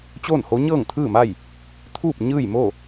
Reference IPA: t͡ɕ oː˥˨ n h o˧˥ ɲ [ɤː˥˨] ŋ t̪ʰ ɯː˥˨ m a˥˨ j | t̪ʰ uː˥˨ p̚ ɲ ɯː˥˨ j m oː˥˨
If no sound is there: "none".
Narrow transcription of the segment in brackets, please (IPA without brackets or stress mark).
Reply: ɤː˥˨